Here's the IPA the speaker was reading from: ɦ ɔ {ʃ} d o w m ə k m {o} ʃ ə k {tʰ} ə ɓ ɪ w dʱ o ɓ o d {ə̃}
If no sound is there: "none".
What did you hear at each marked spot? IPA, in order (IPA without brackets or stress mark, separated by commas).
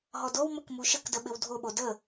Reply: none, u, d, ə